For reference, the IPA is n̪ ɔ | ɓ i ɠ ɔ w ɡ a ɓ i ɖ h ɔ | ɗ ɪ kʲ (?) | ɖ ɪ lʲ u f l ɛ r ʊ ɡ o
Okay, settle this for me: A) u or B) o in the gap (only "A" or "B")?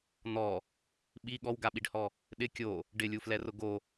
B